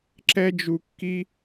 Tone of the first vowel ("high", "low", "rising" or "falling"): high